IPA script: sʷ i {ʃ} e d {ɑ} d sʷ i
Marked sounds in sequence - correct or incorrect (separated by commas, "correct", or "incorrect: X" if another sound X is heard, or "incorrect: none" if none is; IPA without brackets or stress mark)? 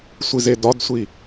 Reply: incorrect: z, incorrect: ɒ